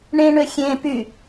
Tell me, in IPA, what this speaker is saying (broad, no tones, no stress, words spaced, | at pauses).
ɳẽɳø xʲẽ py